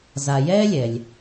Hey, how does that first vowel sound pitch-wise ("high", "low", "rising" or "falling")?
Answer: low